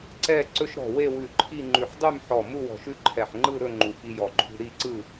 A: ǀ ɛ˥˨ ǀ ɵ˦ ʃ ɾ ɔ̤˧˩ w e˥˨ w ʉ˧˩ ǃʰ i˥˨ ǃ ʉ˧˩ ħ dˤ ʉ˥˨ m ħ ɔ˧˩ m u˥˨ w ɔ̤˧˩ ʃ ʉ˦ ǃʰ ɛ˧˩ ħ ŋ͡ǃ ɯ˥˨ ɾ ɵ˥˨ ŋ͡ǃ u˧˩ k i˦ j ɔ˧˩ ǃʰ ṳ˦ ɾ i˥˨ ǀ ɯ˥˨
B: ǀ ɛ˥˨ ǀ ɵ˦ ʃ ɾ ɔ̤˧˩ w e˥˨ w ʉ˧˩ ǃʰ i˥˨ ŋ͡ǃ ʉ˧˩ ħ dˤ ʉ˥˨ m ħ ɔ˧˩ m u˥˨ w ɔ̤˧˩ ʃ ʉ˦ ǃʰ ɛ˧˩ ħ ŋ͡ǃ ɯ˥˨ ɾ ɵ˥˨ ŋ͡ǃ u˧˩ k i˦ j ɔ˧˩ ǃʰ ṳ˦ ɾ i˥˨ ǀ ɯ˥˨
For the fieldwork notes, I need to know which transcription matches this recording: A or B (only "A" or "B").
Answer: B